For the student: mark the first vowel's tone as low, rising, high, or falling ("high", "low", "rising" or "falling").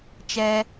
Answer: high